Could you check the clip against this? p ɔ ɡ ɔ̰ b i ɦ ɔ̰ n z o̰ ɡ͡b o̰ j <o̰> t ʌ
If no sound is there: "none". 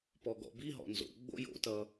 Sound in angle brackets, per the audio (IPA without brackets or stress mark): o̰